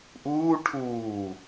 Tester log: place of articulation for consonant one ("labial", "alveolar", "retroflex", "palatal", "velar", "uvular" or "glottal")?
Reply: glottal